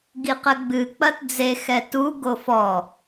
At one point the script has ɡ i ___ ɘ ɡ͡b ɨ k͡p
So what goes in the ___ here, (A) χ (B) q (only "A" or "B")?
B